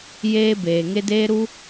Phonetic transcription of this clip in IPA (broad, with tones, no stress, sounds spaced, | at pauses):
j eː˧ b eː˨ ŋ e˧ d eː˧ ɾ u˧